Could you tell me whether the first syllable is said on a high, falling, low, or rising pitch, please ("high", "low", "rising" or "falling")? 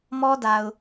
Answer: high